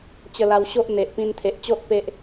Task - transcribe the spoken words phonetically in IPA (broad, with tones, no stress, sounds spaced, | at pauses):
t͡ɕ ə˧ l a˧ w ɕ o˦ ʔ n̪ e˨ ʔ p ĩ˧ n t̪ʰ e˨ ʔ t͡ɕ o˦ ʔ p e˦ ʔ